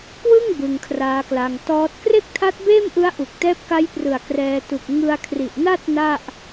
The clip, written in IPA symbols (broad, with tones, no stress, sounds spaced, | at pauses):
k w ɯ˥˩ ŋ b ɯ˧ ŋ kʰ r aː˦˥ k l a˧ ŋ t ɔː˦˥ t̚ k r e˥˩ k̚ tʰ a˦˥ t̚ b eː˥˩ m ʔ ɯ˦˥ a̯ ʔ u˨˩ k̚ t ɛː˦˥ p̚ k a˦˥ j p r ɯ˨˩ a̯ k r ɛː˧ t u˨˩ k̚ ŋ ɯ˧ a̯ kʰ r i˨˩ ʔ n a˥˩ t̚ n a˥˩ ʔ